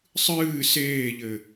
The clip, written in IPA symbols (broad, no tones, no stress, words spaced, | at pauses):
sˤɨː seːʎɘ